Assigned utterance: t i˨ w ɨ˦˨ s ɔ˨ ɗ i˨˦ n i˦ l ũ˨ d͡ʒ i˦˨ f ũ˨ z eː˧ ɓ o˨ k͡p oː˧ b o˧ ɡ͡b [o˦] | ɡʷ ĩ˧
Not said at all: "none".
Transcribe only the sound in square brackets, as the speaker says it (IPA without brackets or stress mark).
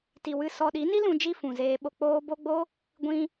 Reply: o˦